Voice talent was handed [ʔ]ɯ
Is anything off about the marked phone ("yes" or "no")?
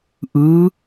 no